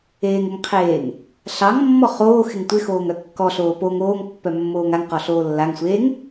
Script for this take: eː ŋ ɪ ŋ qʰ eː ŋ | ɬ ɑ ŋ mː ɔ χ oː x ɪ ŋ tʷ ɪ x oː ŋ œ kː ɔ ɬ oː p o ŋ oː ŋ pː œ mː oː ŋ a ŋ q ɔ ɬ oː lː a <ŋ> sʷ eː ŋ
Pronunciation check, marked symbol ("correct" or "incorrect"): correct